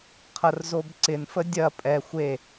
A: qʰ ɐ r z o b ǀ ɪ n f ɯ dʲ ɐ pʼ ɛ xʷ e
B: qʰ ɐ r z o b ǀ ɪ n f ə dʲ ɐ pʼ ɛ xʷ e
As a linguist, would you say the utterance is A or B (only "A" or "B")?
B